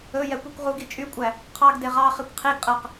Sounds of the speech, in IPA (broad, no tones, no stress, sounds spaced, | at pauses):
ɵ j ɛ kʷ i kʷ ʁ u ɡ i t͡ʃʼ y kʷʼ æ | qʰ ɑ ɡ d e ʁ ɑ χ i kʷ qʰ i ɡ qʼ æ q